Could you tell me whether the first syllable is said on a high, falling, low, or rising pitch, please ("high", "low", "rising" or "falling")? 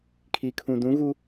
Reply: low